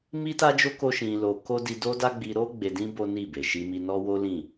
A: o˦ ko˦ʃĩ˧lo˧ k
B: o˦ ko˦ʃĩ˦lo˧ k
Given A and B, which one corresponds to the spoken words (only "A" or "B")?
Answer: A